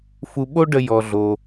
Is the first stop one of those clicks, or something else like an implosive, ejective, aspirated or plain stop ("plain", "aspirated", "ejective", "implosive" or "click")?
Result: implosive